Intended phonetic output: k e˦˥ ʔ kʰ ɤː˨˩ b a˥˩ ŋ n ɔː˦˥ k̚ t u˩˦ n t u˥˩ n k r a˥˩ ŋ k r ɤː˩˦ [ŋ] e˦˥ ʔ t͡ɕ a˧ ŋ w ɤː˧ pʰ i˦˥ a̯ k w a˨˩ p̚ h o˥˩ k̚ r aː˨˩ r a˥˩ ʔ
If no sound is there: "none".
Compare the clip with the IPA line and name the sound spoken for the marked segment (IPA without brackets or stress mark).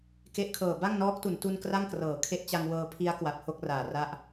kʰ